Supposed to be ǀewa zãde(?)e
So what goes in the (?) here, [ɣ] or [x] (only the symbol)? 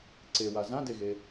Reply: ɣ